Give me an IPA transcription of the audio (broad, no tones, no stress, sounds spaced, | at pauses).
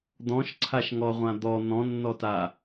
d̪ ɔ̃ ʃ ǀʰ a ʃ ŋ ɔ ʁʷ ã d̪ ɔ n̪ ɔ̃ nː ɔ t a